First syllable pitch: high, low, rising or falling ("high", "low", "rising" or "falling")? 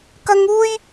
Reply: high